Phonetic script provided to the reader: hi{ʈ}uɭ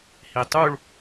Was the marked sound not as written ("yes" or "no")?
yes